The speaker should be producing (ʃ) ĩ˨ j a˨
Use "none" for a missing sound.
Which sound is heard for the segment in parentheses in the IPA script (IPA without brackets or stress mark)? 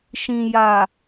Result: ʃ